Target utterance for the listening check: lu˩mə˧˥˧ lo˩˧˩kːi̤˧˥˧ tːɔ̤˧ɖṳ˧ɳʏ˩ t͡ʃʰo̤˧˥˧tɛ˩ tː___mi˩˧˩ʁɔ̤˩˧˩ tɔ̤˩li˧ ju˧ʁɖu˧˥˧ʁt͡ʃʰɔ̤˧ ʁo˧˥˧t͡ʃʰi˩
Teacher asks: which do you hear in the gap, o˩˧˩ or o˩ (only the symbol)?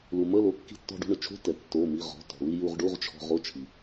o˩˧˩